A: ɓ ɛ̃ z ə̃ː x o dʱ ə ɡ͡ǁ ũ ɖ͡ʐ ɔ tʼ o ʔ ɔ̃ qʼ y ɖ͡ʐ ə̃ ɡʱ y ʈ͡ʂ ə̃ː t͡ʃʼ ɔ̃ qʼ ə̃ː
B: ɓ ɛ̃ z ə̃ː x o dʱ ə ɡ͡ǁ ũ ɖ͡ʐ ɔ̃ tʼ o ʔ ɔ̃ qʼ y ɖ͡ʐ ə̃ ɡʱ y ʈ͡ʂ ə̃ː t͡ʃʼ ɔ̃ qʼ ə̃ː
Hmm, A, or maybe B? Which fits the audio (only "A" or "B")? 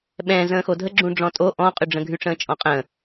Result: B